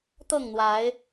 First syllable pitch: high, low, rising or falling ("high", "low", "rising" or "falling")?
falling